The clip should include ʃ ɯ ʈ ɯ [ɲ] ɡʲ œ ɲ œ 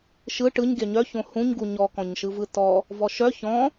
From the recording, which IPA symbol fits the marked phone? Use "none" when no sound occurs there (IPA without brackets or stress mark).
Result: ɲ